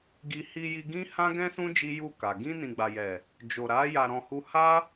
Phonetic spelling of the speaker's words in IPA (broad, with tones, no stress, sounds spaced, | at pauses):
ɡ i˧ h i˧ j i˧ ɡ ĩ˦ h ã˦ ɡ ɛ̃˦ s ũ˦ d͡ʒ i˦ j u˦˨ k a˨ ɡ ĩ˧ n ĩ˨ ɡ͡b a˨ j ɛ˨ | d͡ʒ o˨ ɾ a˨˦ j a˧ ɾ ɔ̃˧ h u˦ h a˦